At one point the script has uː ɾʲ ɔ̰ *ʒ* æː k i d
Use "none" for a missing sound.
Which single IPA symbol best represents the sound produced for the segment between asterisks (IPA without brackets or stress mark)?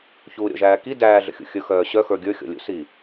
ʒ